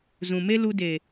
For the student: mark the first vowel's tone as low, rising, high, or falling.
low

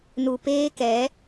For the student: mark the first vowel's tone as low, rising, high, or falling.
low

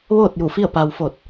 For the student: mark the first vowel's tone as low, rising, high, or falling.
falling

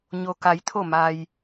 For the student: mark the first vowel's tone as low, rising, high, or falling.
low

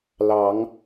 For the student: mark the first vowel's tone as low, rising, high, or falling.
rising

